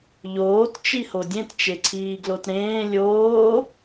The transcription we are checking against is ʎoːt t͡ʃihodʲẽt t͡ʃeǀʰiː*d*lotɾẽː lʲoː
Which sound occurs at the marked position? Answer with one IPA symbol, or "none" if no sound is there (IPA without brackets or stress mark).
ɡ